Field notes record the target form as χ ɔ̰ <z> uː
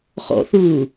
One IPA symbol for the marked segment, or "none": θ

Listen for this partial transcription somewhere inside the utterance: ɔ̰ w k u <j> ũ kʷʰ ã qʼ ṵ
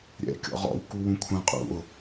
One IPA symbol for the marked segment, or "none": w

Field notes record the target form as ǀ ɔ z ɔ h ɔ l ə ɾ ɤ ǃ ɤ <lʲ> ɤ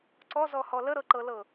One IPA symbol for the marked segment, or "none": l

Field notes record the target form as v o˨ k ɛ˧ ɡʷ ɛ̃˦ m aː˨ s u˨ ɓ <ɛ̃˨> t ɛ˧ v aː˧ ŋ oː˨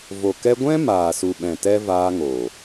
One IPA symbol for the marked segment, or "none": ɛ̃˨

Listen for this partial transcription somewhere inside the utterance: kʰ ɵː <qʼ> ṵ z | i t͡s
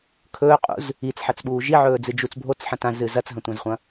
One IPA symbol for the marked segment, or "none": qʼ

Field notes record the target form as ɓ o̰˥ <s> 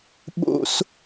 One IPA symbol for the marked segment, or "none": s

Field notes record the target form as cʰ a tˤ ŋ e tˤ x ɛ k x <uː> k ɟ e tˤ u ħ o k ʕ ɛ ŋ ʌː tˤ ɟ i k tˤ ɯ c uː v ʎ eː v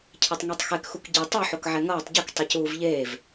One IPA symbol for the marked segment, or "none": u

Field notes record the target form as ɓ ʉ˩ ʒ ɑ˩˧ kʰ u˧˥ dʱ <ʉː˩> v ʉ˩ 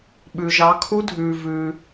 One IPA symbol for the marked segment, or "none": ʉː˩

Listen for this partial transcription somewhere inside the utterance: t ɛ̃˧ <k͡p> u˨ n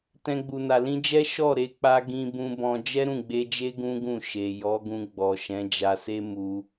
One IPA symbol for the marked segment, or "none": ɡ͡b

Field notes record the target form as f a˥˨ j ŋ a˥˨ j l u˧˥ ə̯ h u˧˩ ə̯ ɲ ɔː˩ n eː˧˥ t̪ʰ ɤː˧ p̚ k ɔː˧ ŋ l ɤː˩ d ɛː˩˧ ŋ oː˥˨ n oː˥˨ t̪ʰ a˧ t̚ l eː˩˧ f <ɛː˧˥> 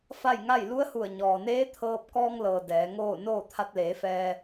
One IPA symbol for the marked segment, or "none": ɛː˧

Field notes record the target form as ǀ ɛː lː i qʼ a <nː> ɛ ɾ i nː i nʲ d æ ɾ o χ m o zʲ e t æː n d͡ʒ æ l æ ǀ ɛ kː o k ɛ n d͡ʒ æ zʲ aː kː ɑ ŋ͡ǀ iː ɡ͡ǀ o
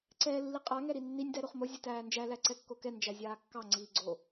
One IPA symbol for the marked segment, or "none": ŋ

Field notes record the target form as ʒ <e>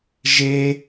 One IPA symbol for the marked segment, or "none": e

